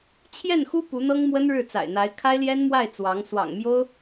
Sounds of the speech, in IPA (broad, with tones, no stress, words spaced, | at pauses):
t͡ɕʰjɛ˥˩nxu˥ pu˧˥n̪ɤ˥ŋmwə˥n ɻɻ̩˥˩t͡sa̰˨˩ɪ̯n̪a˧˥ɪ̯ kʰa˥ɪ̯ljɛ˥nmwa˥˩ɪ̯ t͡swɑ˧˥ŋ swɑ̰˨˩ŋmjo˥ʊ̯